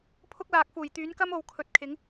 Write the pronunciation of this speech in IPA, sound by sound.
pʰʊ˥k̚laː˨˥k̚fuː˨˩j t̪yː˨˥nkɐ˥mo˨w kʰɵ˨t̚kʰɪ˨˥ŋ

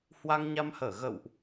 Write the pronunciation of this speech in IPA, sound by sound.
hwa˧ŋɲa˧mhəː˧˩ ɣə̰˧˨wʔ

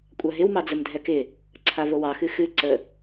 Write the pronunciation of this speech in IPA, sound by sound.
kʷʼaɦɪw mɑd͡zəmdʱɛkɪ | ǀʰavowɑ xɨxɨ ǀə

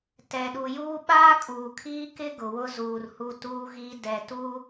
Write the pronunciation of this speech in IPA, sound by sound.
tɛ˨ɗu˨juː˦ ɓaː˦kʼuː˨kʰiː˦kɪ˦ ɡʊ˨wʊ˦zuː˨r hu˦tuː˦ɣi˦ dɛ˨tuː˦

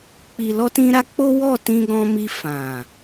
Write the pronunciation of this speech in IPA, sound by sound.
k͡pi˨lɔ˧tĩ˧ɾa˧ k͡po˦ wɔ˦˨ tĩ˧ɡɔ̃˧mi˧ fã˨

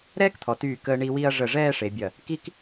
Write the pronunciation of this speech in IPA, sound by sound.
ɾɛː˥kt̪ʰɔ˩˧tyː˧˩ kəː˧ɳi˧ wi˧ɐ̯ ʐə˧˩ ʐɛː˥˧ʂe˩˧bʲɐ˧˩ | ki˥k

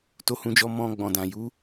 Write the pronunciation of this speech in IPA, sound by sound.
to˧hũ˧d͡ʒɔ˧ mɔ̃˧ ɡ͡bɔ̃˨dã˨ ju˨˦

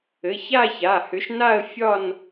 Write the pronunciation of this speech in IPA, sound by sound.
ɘ˩˧˩ça˥˧ça˩˧˩ hʏ˨˥ʃna˥˧ə̯ fʲɒ˥˧n

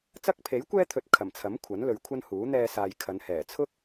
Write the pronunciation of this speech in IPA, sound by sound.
t͡sɐ˥k̚ pʰe˨˥jkʷɛː˥t̪ʰɵ˨˥t̚ kʰɐ˨˩mt͡sʰɐ˨˥m kʷʰɐ˨˥nlɵ˨˧ɥkʷʰɐ˥nhuː˨˥ n̪ɛː˧saː˨j kʰɐ˨˧n hɛː˨˩ t͡sʰʊ˥k̚

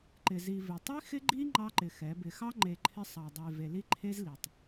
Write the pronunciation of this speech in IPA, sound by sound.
ǃɪ˨zi˨ vɪ˨ tˤi˦xɪ˦ɡ͡ǃi˦ ŋ͡ǃɑ˦ǃɪ˨xɛ˨˦bɪ˨ xɑ˦ŋ͡ǃe˨ ǃʰɪ˦sˤɑ˨dˤe˨ ve˨li˦ǃʰe˦z li˨tˤ

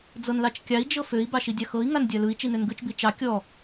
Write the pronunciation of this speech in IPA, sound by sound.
d͡zɤnlɑt͡ʃkʲɑi̯ d͡ʒɤføi̯ bɑʃidʲɑxɤi̯ ŋandʲalɯi̯ t͡ʃinønɡɯt͡ʃ bit͡ʃɑ kʲɔ

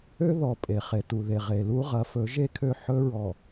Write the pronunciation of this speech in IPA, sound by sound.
ø˦ðɔ˨ pʼe˨χe˨ tu˨ðe˨ ʁe˨lu˦ʁɐ˨˦fɵ˨˦ ʒe˦˨kʰø˦˨ ħɵ˦ɹɔ˨

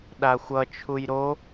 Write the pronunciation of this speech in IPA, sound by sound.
ɗaxʷʌt͡ʃʰuj ɾo

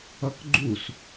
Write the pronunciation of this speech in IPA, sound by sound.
ʌkɡ͡ǃus

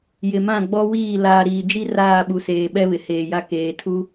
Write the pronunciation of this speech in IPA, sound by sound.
jɪ˨mã˦˨ ɡ͡bɔ˦wiː˦˨ laː˨ɾiː˨d͡ʒi˦ raː˦˨ɓu˨seː˨ ɓɛ˦βɪ˨heː˨ja˦ keː˨ tʰu˦

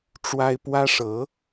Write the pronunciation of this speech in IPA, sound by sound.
ʈ͡ʂwa˥ɪ̯ pwä˥ʂɤ˧˥

